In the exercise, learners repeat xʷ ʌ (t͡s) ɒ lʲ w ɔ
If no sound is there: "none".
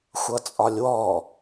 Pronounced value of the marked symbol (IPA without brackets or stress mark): t͡sʼ